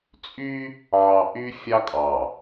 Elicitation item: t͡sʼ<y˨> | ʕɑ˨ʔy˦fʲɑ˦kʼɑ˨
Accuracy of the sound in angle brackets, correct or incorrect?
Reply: incorrect